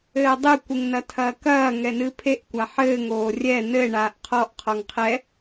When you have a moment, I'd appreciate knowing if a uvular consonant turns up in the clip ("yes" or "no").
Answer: yes